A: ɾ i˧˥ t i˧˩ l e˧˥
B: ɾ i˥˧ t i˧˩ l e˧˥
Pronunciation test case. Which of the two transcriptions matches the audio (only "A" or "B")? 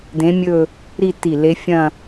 B